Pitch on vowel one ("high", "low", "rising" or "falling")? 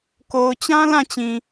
low